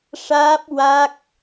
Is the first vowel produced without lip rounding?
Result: yes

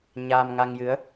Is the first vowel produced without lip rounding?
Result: yes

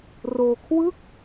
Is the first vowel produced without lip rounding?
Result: no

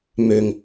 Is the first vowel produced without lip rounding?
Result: no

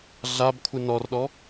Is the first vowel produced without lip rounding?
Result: yes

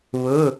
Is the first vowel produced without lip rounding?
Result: no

